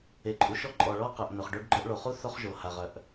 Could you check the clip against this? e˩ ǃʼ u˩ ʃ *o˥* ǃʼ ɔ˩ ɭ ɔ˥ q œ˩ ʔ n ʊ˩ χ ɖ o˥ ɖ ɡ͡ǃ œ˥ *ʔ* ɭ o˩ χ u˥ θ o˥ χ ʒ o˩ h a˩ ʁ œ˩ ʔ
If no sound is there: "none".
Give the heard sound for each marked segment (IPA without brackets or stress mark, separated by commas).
ɔ˥, ʔ